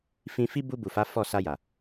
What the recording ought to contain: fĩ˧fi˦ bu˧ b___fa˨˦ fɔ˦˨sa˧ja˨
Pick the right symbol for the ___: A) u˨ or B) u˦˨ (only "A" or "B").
A